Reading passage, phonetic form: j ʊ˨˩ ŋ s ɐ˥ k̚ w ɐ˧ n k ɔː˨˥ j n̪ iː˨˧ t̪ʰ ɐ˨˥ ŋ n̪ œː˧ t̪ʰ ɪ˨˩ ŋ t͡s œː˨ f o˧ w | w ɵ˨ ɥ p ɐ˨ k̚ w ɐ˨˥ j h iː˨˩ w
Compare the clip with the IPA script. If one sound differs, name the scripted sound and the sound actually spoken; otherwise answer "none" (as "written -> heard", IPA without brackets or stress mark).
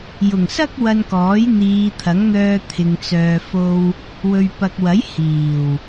ɪ˨˩ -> ɪ˨